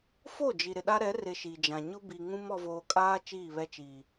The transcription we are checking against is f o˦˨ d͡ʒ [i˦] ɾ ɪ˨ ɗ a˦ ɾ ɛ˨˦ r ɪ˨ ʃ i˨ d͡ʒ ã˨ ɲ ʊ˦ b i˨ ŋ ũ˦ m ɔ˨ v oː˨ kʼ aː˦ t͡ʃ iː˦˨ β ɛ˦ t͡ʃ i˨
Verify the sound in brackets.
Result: incorrect: i˨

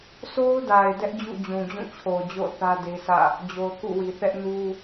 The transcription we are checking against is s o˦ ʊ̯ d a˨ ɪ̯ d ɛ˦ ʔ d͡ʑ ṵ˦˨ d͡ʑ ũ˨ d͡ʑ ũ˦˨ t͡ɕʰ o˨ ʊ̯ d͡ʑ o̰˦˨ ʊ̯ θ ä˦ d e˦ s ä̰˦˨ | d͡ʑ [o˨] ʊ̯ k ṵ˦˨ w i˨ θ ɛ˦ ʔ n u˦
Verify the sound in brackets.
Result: correct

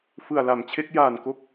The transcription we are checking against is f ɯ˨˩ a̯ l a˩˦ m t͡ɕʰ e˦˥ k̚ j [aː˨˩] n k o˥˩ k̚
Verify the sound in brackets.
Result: correct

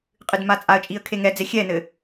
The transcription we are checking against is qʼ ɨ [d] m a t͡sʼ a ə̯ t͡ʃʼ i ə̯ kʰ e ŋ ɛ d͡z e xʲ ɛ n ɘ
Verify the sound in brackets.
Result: correct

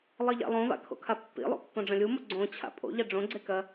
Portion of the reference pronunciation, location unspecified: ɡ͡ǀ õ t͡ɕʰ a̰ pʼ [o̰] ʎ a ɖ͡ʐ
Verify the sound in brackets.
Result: correct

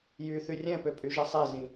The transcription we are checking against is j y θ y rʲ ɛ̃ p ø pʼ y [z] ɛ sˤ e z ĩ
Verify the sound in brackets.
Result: incorrect: ʒ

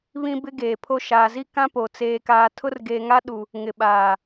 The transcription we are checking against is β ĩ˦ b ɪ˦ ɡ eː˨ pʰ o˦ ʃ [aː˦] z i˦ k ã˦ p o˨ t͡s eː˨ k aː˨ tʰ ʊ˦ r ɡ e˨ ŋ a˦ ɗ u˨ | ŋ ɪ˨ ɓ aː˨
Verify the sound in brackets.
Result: incorrect: aː˨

